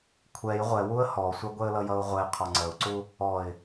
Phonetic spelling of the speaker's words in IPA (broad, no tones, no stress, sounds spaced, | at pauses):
kʷʰ ɛ j ʁʷ ɛ w u ə̯ h ɔ sʷ ɛ ɡʷ ɛ ə̯ l ʌ j ʌ ʊ̯ ʁʷ ɛ ɪ̯ qʰ ɒ ŋ͡ǀ ə ʊ̯ ǀ u | ɔ ɪ̯